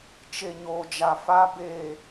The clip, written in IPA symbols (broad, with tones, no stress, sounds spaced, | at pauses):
t͡ʃ e˨ ɲ oː˨ d͡ʒ a˨ f a˦ b eː˦˨